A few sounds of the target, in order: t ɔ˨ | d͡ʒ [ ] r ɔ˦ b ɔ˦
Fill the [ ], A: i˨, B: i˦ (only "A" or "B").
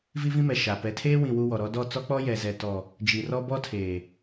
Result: A